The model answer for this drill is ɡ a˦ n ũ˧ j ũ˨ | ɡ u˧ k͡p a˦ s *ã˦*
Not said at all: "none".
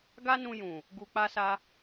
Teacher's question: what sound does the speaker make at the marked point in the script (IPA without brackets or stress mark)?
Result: a˦